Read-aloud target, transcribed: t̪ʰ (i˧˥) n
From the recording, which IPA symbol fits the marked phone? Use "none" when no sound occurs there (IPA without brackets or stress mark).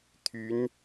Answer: y˧˥